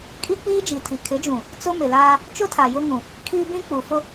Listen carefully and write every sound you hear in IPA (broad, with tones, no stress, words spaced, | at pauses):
kʼi˦k͡piː˦d͡ʒi˨tʰi˨ kʰɪ˨˦d͡ʒũ˨ | t͡sʊ˦ mɪ˨laː˦ | t͡ʃʊ˦tʰa˨ jʊ˦ŋũ˨ | kʰi˦bĩ˦k͡pu˨ fʊ˦